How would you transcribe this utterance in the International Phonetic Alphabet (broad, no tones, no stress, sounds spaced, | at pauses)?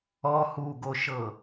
ɔ h u ɡ o ʃ ɤ